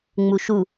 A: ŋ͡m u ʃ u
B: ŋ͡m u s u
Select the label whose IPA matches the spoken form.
A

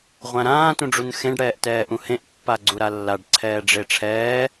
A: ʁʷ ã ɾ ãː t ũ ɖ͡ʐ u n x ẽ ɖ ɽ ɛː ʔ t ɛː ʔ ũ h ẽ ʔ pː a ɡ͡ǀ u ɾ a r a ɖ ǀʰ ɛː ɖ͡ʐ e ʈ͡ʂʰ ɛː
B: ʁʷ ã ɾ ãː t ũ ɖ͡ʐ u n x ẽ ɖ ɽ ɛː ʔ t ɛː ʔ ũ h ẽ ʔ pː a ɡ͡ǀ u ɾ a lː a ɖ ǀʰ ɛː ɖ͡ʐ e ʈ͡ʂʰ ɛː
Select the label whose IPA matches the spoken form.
B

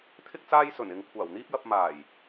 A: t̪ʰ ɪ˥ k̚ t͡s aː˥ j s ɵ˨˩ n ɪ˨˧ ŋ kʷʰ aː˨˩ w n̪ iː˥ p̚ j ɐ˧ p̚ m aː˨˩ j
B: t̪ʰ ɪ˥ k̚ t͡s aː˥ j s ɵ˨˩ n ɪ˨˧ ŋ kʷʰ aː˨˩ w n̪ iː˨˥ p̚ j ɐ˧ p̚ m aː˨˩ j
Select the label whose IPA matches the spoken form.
A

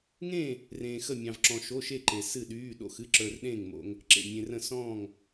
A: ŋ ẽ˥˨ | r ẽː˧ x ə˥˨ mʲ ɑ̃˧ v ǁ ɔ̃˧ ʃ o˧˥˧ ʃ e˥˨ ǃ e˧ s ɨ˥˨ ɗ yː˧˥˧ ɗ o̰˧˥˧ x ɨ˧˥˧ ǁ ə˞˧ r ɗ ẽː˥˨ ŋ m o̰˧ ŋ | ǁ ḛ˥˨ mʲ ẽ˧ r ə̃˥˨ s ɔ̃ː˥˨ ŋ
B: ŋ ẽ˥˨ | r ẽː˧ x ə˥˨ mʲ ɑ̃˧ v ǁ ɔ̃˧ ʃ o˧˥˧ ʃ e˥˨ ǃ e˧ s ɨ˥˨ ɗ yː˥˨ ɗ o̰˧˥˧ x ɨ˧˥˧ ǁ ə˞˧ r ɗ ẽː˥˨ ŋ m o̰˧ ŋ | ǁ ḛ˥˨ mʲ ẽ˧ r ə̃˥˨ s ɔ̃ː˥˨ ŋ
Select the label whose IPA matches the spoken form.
A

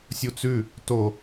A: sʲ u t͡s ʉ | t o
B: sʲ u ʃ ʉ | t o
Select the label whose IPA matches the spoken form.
A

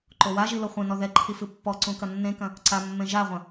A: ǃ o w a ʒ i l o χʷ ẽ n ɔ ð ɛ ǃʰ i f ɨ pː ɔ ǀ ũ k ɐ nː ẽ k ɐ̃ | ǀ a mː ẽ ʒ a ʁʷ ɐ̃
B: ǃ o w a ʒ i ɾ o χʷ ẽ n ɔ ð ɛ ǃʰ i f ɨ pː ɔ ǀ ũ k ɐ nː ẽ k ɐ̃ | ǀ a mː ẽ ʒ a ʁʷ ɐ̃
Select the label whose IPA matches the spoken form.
A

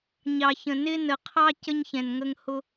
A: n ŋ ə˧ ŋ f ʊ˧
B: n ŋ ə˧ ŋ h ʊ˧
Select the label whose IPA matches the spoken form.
B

